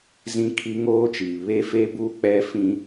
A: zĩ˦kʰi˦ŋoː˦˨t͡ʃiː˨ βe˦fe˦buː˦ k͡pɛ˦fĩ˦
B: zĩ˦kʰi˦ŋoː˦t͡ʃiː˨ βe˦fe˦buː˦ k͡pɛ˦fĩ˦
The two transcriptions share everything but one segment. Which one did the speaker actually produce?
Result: B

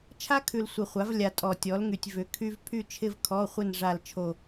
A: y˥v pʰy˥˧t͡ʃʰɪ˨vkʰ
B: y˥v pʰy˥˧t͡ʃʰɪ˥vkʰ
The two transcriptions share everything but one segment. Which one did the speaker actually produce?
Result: B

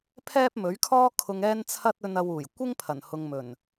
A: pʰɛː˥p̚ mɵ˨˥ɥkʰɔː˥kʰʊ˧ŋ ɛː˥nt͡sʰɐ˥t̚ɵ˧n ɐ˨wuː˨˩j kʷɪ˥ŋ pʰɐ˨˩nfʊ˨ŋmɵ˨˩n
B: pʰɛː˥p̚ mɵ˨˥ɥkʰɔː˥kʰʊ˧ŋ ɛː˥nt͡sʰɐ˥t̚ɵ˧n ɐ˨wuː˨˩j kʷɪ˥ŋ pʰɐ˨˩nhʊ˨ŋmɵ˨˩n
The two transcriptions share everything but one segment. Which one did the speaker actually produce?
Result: B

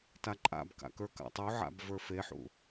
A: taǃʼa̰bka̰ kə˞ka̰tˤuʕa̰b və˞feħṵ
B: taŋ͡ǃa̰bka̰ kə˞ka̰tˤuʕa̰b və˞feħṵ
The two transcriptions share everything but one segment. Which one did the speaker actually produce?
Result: A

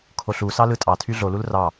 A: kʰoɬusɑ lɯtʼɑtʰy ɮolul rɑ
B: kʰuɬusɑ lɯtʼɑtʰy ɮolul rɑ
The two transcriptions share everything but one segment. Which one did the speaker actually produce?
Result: A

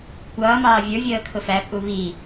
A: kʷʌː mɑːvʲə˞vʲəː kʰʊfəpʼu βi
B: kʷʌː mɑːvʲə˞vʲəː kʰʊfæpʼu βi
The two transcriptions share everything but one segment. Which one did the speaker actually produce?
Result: B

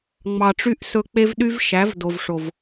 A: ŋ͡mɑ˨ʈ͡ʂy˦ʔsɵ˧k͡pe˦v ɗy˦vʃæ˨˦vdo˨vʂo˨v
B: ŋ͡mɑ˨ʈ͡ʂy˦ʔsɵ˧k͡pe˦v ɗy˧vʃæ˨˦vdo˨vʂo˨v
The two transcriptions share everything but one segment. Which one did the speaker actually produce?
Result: A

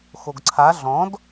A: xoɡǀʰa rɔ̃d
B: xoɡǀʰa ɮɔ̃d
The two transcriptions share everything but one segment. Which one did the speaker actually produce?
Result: B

